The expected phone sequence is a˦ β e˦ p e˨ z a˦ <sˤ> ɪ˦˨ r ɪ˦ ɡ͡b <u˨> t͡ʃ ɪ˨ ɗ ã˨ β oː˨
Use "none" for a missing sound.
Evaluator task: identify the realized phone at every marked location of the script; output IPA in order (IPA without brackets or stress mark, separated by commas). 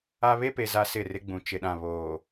s, ũ˨